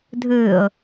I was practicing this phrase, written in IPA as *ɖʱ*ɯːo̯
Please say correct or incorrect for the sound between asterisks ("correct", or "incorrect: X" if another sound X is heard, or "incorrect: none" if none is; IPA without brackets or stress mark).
incorrect: dʱ